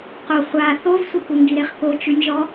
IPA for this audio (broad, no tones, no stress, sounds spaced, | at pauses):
q o χʷ a θ o v sʷ e k u ŋ ɡ i ɾ e χ k o t͡ʃ ʉ nʲ ʒ ɔ